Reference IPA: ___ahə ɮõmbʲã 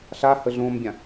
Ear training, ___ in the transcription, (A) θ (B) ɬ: B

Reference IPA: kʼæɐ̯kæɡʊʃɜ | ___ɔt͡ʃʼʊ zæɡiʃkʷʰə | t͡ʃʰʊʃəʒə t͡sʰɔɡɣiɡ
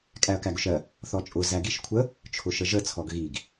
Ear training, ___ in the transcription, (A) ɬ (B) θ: B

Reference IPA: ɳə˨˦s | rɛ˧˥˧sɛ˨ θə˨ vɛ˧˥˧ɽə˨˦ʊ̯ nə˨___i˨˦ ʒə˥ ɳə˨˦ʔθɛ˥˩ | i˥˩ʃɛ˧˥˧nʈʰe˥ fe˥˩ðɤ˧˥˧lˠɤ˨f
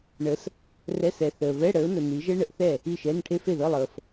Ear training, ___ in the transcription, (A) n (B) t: A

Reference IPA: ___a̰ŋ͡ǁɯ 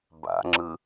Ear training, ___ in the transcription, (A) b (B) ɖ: A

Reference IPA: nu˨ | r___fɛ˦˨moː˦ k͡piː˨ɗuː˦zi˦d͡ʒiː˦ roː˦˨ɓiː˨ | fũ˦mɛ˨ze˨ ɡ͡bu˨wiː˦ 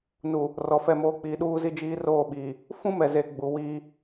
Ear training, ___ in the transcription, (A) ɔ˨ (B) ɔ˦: A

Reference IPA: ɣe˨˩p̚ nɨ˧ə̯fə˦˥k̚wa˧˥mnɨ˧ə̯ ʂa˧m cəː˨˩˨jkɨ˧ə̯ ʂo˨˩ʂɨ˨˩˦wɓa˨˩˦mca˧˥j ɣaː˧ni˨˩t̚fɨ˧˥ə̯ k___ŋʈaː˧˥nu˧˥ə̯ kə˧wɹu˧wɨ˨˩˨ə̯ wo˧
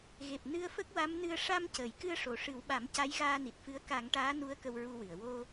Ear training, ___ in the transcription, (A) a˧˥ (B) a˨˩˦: B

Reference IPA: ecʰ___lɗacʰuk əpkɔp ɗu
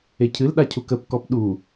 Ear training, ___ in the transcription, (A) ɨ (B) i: A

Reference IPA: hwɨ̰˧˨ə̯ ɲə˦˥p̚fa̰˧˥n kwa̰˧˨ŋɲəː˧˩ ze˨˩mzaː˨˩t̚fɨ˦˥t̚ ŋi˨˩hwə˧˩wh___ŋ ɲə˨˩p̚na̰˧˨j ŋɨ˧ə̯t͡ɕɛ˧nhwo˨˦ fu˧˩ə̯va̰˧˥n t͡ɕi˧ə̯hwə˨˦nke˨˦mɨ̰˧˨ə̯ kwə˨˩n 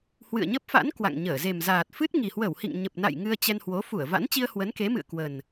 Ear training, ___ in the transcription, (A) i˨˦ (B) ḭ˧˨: B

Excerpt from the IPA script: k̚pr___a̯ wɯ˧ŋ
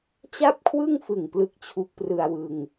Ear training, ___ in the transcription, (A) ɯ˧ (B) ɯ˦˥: A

